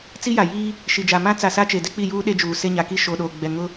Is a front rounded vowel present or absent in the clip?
absent